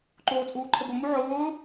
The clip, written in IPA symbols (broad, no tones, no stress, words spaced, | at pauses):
ǃoːt͡sʼuːǃʰəbʊ muʕʊː